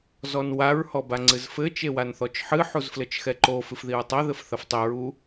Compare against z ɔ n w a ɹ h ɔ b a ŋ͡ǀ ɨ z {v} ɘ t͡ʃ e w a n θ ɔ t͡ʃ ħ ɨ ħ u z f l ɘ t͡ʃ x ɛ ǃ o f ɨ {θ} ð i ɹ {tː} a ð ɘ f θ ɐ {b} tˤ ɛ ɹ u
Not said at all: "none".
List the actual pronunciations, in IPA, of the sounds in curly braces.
f, f, tˤ, f

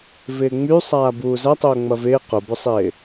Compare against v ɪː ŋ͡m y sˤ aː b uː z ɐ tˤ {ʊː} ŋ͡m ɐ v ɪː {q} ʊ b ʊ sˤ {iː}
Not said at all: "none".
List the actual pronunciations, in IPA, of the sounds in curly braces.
ʊː, q, ɪː

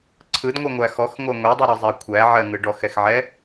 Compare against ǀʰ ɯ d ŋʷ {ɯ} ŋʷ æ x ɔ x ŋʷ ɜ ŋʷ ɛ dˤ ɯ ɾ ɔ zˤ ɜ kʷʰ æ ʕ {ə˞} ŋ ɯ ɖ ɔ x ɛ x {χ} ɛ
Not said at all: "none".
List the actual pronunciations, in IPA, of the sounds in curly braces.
ɯ, ɜ, ʕ

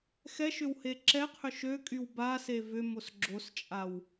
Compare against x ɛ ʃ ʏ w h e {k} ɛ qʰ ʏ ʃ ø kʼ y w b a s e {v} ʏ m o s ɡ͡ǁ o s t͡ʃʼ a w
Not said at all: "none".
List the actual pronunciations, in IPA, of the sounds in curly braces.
ǁ, v

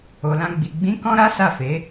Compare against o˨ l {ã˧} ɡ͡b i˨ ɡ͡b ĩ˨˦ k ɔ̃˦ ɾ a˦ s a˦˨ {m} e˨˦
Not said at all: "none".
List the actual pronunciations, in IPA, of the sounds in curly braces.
ã˧, f

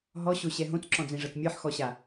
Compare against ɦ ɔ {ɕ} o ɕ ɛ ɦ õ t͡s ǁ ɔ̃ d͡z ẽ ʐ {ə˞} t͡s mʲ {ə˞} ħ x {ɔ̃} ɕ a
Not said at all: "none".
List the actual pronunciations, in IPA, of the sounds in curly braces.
ɕ, ɤ, ə˞, ɔ

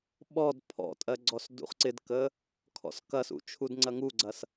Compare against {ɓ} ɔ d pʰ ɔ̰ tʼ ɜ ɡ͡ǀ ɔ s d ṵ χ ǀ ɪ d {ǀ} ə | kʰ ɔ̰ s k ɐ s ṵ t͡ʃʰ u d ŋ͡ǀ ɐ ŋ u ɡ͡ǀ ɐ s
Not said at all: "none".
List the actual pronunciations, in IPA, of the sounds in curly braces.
ɓ, k

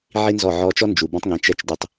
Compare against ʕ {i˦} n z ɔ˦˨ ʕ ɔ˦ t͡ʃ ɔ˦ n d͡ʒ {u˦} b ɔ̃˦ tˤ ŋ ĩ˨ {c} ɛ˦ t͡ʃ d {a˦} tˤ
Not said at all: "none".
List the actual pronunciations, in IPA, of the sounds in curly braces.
i˦, u˨, t͡ʃ, ə˦

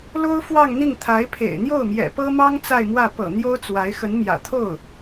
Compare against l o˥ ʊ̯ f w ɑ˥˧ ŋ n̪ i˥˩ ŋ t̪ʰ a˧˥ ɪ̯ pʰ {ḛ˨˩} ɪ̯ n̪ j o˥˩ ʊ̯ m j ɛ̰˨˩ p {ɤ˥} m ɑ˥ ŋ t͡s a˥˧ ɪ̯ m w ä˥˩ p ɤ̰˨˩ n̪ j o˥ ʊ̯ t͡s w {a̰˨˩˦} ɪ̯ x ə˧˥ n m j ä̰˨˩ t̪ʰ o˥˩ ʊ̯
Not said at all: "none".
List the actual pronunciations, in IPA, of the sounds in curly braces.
ḛ˨˩, ɤ˥, a˧˥

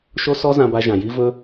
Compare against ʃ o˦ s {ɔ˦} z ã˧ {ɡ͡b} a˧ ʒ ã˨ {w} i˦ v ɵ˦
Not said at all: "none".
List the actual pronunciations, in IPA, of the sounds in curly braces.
ɔ˦, b, j

